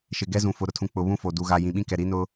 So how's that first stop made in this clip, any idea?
plain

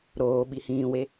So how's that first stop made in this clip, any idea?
implosive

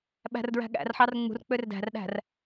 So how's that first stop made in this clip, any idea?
implosive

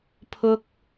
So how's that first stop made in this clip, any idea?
aspirated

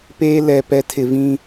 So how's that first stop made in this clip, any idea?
plain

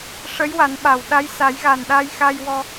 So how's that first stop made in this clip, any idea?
implosive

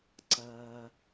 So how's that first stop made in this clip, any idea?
click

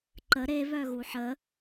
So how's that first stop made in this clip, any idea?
click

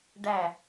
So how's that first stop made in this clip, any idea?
plain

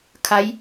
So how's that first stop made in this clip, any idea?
aspirated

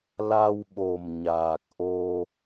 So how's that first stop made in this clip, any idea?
implosive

